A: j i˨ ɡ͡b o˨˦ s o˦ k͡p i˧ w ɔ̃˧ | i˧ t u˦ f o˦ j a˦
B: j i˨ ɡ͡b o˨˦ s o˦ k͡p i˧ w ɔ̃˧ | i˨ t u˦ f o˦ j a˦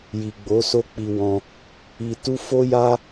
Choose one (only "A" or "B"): A